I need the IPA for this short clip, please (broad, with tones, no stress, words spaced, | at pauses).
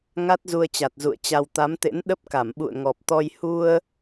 ŋa˦˥t̚zu˧ə̯t͡ɕa˨˩t̚ zṵ˧˨ə̯t͡ɕa˧w t̪a˨˦mt̪ḛ˧˥nɗə˦˥p̚ka˧˩m ɓṵ˧˨ə̯ŋɔ˨˩p̚t̪ɔ˧j hu˧ə̯